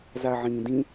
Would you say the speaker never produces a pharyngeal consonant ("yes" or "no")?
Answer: no